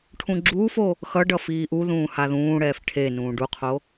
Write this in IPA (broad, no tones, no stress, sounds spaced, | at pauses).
ʈʰ ũ ɡ͡ǁ uː f o | x ʌ ɖ ʌ f iː ʔ u ð ũː h a ð ũː ɽ ɛː f ʈʰ e n ũː ɖ u qʰ o